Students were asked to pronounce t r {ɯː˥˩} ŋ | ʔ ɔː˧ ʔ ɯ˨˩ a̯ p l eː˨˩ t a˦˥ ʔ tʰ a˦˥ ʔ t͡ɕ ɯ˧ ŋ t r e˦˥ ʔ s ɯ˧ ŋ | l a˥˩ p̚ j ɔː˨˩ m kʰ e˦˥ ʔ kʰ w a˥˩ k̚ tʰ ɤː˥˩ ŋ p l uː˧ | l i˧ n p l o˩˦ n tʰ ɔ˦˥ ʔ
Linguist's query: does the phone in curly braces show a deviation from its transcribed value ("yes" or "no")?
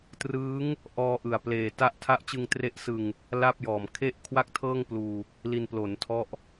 yes